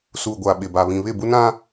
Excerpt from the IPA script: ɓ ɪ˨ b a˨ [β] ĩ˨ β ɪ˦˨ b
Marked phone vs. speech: correct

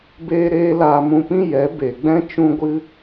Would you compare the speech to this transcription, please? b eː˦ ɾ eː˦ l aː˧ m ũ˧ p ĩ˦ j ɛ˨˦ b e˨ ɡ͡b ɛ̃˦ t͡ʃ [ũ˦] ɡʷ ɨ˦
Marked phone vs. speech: correct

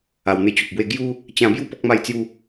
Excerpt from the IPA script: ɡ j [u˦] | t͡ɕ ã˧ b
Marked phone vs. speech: correct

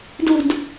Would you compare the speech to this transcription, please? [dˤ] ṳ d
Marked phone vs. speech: incorrect: d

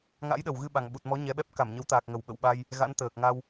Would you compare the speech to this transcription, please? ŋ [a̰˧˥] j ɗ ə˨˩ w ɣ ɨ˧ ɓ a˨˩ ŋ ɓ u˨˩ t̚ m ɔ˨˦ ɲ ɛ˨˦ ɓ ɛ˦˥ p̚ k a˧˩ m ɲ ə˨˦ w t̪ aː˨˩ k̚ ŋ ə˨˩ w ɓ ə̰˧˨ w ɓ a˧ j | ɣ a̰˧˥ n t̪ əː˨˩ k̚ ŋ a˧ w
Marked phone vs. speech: correct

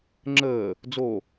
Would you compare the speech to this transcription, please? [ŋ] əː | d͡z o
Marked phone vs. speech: incorrect: ŋ͡ǁ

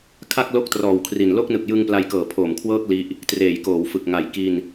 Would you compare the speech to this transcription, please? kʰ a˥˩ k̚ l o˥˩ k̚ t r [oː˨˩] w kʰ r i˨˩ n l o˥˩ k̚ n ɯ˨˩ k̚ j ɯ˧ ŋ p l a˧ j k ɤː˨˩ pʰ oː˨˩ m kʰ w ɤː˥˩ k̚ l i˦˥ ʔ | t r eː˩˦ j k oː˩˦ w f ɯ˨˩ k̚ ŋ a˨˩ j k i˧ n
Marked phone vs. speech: incorrect: ɔː˨˩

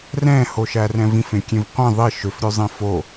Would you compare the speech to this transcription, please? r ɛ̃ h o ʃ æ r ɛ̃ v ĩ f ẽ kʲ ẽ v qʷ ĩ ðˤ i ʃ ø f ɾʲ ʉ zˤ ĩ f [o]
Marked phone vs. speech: correct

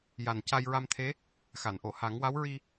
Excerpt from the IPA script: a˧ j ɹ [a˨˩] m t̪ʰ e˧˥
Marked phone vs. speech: incorrect: a˧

